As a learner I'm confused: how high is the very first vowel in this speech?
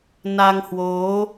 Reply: low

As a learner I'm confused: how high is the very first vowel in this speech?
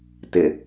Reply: high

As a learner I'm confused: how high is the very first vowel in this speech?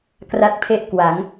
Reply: low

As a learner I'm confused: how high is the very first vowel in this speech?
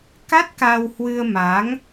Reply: low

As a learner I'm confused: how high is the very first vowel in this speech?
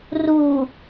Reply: high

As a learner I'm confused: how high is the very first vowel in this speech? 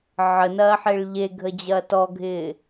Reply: mid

